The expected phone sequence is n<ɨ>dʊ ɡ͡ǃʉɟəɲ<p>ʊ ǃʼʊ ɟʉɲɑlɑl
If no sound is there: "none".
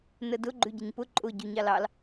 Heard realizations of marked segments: ə, p

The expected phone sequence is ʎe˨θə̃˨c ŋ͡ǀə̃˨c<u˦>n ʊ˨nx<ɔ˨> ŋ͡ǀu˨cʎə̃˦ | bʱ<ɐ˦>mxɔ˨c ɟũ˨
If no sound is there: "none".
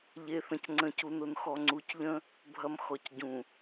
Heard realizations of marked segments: u˨, ɔ˨, ɐ˨

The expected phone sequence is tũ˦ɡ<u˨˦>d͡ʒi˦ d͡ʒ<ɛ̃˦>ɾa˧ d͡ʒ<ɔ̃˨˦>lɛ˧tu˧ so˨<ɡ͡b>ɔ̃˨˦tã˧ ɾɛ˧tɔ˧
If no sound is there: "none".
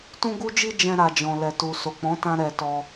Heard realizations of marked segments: u˦, ɛ̃˦, ɔ̃˧, k͡p

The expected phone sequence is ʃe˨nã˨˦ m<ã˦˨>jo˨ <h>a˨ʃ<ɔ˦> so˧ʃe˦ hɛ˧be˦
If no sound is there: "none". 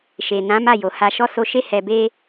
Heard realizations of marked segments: a˦˨, h, ɔ˧

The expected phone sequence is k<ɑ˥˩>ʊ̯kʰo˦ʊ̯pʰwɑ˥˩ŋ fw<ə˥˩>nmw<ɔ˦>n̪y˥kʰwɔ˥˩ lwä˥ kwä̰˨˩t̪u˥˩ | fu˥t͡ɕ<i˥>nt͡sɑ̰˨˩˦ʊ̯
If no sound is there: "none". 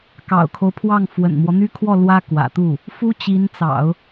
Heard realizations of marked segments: ɑ̰˨˩, ə̰˨˩, ɔ˦, i˧˥

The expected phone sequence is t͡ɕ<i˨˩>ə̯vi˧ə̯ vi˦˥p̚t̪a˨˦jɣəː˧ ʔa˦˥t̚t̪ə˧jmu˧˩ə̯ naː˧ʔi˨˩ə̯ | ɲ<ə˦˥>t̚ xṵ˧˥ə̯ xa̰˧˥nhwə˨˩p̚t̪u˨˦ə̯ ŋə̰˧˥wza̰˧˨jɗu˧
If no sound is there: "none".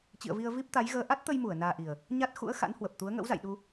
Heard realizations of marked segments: ḭ˧˨, a˦˥

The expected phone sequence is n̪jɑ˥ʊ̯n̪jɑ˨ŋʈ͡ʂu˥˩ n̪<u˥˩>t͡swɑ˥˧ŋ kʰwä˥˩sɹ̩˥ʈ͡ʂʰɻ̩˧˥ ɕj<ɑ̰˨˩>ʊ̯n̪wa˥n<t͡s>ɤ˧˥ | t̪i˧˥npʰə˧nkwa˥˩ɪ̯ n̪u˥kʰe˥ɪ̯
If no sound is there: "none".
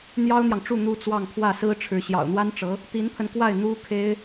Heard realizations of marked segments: u˥, ɑ̰˨˩, ʈ͡ʂ

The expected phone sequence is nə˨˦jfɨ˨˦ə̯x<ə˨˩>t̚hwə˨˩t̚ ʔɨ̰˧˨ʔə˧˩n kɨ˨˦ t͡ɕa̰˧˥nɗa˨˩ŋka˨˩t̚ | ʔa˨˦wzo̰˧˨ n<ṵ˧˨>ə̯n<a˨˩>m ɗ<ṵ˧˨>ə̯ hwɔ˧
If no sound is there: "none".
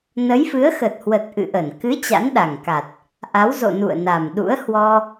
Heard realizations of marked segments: ə˨˩, ṵ˧˨, a˨˩, ṵ˧˥

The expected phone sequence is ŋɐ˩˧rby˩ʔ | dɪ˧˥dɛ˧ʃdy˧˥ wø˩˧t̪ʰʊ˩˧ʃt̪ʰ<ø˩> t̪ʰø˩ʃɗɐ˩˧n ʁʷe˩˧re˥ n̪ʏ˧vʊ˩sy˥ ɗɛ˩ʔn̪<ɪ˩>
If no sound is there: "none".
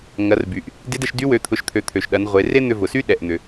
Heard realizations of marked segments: ø˩˧, ʏ˩

